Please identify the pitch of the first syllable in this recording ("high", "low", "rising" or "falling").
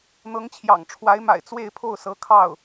rising